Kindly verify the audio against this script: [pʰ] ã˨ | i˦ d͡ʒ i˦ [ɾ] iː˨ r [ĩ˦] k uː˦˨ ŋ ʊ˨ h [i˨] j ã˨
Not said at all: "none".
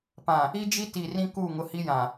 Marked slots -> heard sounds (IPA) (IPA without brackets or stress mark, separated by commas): p, t, ĩ˦, i˦